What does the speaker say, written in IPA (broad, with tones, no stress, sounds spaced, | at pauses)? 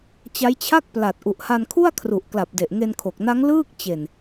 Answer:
t͡ɕ a˦˥ j t͡ɕʰ a˥˩ k̚ p l a˨˩ t̚ ʔ u˨˩ ʔ h a˧ n kʰ u˥˩ a̯ kʰ r u˨˩ ʔ k l a˨˩ p̚ d e˨˩ ʔ ŋ e˧ n kʰ o˨˩ k̚ n a˦˥ ŋ l ɯː˥˩ k̚ t͡ɕ e˨˩ n